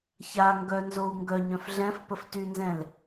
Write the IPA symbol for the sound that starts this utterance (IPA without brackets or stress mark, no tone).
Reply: ç